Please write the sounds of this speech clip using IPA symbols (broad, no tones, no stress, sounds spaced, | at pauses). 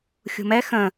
xʲ ṳ m ɛ x ə̃